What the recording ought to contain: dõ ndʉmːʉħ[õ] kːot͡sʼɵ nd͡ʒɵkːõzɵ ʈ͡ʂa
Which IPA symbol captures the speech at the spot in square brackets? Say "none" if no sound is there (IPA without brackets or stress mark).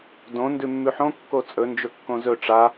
õ